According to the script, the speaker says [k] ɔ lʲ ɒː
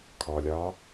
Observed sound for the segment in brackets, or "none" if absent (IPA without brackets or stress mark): kʰ